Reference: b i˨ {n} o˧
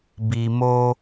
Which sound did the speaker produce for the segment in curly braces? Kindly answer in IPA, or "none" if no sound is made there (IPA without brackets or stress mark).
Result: m